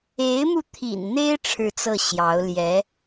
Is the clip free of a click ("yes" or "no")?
yes